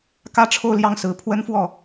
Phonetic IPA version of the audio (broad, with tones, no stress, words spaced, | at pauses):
kä˥ʈ͡ʂʰo˥˧ʊ̯ljɑ˥˩ŋsɹ̩˨˩ pʰwə˥nfwɔ˥˩